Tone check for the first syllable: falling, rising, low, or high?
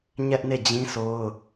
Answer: high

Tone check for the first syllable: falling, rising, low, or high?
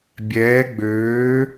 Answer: rising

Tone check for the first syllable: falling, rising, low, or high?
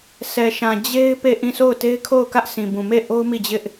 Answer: low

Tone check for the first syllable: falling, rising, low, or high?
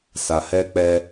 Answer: low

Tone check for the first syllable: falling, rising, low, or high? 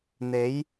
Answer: rising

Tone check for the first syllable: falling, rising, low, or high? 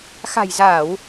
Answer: low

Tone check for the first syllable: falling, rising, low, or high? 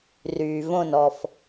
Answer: low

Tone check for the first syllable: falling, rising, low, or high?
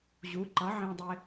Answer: rising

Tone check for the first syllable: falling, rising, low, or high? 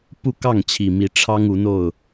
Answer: falling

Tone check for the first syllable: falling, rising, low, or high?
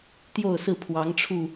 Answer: falling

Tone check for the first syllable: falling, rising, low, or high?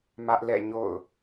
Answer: high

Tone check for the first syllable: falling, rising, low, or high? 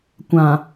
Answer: low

